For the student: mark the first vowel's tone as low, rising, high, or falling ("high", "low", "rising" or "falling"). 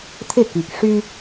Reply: falling